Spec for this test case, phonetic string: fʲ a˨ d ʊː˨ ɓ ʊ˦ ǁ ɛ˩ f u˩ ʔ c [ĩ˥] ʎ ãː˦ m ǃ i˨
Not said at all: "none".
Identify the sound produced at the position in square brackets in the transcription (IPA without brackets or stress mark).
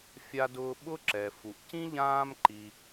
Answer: ĩ˥